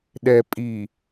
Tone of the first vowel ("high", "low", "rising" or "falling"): low